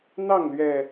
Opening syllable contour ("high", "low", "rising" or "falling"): falling